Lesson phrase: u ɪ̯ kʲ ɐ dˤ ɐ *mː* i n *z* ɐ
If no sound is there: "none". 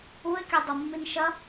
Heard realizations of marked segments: mː, ʃ

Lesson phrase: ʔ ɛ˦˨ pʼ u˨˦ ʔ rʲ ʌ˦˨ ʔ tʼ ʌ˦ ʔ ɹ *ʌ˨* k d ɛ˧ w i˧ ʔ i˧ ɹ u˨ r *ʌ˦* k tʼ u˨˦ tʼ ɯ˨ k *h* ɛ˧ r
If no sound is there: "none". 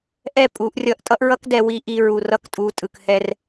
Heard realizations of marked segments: ʌ˦, ʌ˧, h

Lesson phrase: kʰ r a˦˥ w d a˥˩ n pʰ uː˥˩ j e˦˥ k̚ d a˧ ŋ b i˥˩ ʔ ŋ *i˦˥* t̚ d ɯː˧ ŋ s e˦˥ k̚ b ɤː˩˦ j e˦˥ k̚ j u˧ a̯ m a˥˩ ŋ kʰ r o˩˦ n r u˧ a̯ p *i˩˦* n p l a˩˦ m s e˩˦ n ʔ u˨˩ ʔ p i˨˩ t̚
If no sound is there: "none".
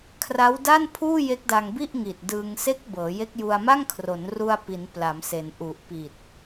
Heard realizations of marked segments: i˨˩, i˩˦

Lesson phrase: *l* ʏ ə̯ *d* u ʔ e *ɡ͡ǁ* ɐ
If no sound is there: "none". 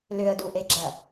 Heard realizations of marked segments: l, d, ɡ͡ǁ

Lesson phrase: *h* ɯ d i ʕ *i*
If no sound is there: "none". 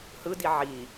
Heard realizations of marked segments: h, i

